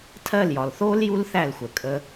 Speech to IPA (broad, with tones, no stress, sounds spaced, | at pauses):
tʰ ɜ˦˨ l j ɒ˨ l θ oː˦ l j u˦ l θ æ˦˨ l xʷ ə˨ kʼ ə˧